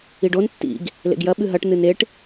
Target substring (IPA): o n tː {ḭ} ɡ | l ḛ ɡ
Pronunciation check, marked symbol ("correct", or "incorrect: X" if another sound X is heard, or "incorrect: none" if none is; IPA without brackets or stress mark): correct